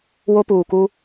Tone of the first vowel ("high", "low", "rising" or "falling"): high